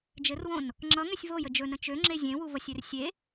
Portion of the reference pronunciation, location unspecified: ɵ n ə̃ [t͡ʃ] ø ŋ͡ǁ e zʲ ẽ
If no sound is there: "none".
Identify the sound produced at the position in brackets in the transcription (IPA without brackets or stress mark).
t͡ʃ